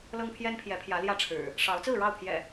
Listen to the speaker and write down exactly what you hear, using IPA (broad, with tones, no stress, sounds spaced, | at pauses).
l ɤ˦ ŋ pʰ j ɛ˦ n pʰ j ɛ˨˦ pʰ j ä˨˦ l j ä˥˨ ʈ͡ʂʰ ɻ̩˨˩ | ʂ ɑ˨˦ ʊ̯ t͡s ɹ̩˥˨ ɻ ɑ˥˨ ʊ̯ pʰ j ɛ̰˨˩